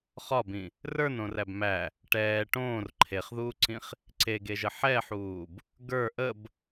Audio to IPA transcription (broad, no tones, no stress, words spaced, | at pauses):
χɒbĩ | rə˞nõræb mæ | ʈɛː ʈõːr ǃʰeχðuːǀĩχ | ǀeɡeʒə ħɛħuːb | ɡə˞ ʔəb